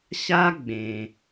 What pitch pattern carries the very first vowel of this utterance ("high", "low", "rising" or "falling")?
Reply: high